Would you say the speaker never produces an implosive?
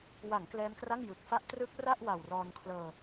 yes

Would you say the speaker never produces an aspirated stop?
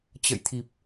no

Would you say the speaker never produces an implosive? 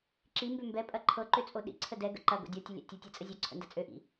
no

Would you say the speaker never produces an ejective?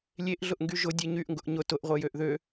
yes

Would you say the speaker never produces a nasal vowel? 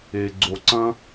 no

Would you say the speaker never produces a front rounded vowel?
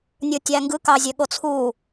no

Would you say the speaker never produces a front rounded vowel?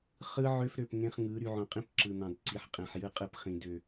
no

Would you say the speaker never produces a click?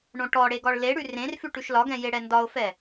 yes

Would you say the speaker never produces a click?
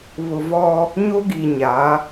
yes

